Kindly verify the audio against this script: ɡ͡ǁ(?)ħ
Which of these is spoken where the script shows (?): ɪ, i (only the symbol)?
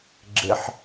ɪ